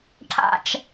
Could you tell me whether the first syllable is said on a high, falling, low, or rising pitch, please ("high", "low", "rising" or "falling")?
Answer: low